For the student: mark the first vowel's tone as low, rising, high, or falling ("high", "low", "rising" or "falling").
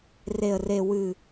low